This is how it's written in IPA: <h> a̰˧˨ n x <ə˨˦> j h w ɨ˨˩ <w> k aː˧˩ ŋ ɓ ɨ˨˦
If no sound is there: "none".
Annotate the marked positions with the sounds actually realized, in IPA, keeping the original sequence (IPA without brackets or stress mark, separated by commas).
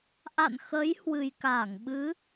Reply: ʔ, ə˨˦, j